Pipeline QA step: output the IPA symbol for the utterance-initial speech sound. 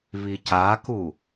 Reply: β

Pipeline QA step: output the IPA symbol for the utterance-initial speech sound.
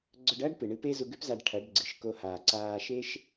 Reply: ɡ͡ǀ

